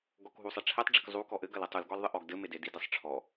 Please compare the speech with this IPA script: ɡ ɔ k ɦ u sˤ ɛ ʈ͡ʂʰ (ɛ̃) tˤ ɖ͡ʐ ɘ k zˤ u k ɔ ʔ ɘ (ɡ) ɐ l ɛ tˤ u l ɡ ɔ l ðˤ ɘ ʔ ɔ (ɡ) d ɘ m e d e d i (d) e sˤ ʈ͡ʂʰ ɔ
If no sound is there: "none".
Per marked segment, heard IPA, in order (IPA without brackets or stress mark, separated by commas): ɛ, ɡ, ɡ, d